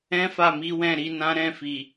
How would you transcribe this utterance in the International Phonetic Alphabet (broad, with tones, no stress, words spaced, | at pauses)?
ɛ̃˦fa˦˨mi˨˦wɛ̃˦˨ ɾi˨˦nã˦ ɾɛ̃˦˨fi˨